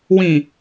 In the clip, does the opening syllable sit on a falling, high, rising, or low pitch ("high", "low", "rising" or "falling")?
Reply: low